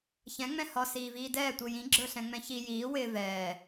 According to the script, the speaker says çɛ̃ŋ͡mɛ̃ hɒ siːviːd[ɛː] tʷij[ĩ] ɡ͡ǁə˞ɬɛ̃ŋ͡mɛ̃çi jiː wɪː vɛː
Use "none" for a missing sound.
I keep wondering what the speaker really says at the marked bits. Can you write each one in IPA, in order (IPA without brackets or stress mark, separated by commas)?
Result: ɛː, ĩ